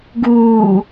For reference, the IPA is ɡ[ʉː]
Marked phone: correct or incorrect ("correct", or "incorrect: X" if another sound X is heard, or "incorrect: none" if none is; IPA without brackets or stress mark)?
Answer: incorrect: uː